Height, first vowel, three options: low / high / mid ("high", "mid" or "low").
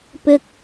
high